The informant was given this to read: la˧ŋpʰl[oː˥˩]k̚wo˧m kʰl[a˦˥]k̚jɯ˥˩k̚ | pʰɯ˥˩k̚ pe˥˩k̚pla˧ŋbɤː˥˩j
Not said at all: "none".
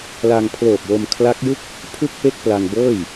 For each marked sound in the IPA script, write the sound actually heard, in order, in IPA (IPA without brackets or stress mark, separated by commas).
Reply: oː˨˩, a˦˥